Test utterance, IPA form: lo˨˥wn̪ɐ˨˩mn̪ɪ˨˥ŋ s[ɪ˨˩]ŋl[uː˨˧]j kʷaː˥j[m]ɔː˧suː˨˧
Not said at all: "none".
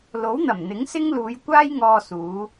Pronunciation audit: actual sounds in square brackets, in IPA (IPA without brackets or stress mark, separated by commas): ɪ˥, uː˨˧, ŋ